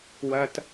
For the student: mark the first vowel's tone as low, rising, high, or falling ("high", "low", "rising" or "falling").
low